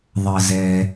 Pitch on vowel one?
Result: low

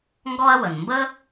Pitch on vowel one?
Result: high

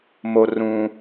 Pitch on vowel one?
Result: high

